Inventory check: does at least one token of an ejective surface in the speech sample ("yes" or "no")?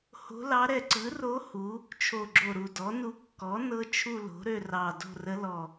no